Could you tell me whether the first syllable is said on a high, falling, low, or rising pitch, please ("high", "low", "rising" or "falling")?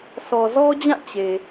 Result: low